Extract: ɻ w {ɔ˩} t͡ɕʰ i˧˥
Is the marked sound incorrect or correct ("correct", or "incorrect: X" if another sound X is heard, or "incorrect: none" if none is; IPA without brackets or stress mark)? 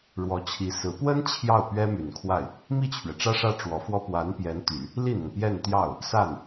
incorrect: ɔ˧˥